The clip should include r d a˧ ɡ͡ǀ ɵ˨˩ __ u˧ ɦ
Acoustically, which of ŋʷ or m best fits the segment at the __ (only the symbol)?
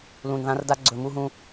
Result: m